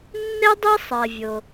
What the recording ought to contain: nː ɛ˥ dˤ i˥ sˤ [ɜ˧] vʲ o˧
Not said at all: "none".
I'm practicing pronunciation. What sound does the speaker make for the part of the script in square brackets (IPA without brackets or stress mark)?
ɜ˧